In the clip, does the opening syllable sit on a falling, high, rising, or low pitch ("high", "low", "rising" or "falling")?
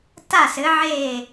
falling